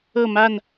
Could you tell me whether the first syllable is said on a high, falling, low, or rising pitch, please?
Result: falling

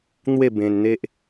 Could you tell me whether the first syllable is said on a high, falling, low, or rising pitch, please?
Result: falling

